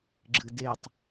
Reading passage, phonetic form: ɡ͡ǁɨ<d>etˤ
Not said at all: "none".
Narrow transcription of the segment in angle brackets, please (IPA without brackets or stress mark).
d